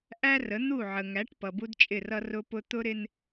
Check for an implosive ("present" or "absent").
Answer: absent